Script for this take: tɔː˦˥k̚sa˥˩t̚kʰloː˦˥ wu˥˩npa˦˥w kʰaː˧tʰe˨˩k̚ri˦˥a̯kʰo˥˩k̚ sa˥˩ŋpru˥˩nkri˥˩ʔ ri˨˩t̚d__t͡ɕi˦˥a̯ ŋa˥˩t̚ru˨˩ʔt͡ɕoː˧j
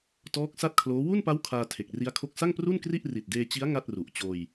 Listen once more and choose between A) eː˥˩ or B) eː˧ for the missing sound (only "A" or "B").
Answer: B